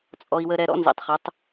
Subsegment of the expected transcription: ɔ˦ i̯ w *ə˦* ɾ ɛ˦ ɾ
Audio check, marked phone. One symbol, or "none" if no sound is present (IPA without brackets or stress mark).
ə˦